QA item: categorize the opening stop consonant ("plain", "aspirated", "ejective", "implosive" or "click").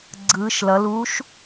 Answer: click